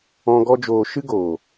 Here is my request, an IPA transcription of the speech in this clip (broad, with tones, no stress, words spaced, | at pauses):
ɔ̃˦ ɡɔ˦d͡ʒoː˧ ʃɨ˦ɡoː˨